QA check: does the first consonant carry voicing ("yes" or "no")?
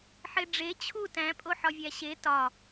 no